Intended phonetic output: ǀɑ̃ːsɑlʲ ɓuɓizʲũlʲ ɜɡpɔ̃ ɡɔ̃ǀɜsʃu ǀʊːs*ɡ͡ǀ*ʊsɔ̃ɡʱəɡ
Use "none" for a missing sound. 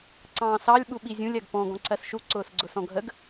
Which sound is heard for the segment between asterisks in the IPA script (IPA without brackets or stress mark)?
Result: ɡ͡ǀ